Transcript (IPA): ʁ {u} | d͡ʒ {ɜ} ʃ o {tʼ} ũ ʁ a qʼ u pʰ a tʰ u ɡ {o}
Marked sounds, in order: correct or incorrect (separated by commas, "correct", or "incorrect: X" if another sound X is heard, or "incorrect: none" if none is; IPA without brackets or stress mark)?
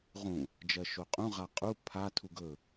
incorrect: ũ, correct, incorrect: qʼ, incorrect: ɵ